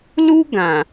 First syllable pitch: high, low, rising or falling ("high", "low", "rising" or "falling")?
high